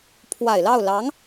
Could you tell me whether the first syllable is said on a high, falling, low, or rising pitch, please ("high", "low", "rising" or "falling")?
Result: low